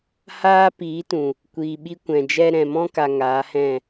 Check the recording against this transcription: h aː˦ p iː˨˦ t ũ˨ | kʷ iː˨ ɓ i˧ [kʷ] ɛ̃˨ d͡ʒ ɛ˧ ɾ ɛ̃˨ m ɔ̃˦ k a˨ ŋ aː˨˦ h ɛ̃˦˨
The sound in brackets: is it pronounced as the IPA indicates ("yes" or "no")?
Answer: yes